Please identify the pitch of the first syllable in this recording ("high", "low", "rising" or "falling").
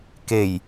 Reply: low